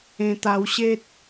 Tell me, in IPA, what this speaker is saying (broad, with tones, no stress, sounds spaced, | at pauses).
ẽ˧ t̪ a˧ w ɕ e˦ t̚